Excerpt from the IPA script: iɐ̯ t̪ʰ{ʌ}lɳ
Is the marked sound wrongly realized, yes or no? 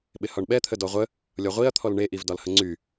yes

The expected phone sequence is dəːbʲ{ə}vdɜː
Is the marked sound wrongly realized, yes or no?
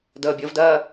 no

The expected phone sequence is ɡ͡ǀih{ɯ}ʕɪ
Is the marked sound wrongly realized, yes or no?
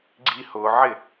yes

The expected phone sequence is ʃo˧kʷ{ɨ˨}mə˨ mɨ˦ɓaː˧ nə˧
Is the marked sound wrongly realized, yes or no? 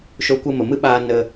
yes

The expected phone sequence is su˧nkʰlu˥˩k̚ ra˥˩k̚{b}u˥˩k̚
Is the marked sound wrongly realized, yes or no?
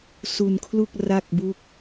no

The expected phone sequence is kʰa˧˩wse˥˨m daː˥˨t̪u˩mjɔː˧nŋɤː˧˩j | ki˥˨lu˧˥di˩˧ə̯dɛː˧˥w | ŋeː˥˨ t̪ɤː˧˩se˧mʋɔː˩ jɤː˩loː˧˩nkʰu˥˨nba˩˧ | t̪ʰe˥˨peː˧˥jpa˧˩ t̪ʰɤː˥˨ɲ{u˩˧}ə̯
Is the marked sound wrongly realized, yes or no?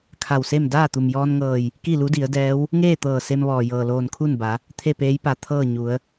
no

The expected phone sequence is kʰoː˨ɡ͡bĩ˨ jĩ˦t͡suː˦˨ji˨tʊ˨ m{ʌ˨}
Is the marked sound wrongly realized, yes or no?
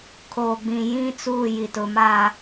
yes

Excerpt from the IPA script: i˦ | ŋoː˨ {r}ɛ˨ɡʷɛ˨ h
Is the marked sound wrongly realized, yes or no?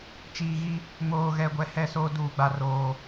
yes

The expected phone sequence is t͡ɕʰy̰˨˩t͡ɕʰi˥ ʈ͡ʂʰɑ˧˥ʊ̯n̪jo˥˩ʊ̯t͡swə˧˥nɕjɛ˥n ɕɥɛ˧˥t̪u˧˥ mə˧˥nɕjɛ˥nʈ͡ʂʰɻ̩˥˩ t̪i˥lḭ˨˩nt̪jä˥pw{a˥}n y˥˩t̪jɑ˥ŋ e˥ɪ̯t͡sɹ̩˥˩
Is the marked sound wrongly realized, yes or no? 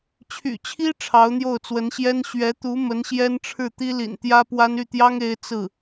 no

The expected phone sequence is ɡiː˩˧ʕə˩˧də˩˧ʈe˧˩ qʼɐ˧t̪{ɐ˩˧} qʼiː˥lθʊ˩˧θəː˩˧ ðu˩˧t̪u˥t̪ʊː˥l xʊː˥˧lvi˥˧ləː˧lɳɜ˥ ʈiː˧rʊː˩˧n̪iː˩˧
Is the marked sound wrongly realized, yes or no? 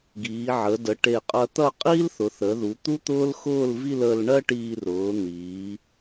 yes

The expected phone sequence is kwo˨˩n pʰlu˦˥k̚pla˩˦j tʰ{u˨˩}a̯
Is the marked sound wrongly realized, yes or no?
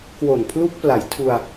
yes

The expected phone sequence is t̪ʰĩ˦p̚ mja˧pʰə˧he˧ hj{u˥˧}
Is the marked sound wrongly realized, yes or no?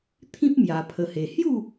no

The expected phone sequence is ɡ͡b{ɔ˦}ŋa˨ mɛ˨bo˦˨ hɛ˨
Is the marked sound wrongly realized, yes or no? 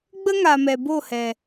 yes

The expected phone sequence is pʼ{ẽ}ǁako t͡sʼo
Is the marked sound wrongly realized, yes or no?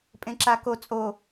no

